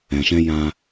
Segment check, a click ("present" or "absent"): absent